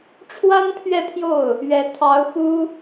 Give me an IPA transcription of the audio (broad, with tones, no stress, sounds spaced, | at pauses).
ʈ͡ʂʰ w a˥ n pʰ ɥ ɛ˥˧ pʰ j o˥˩ ʊ̯ | ɥ ɛ˧˥ t̪ʰ ɑ˧˥ ʊ̯ x u˥